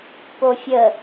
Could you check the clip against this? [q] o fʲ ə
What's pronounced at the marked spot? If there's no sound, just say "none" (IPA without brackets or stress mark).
p